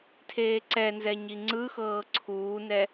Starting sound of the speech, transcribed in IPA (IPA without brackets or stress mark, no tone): tʰ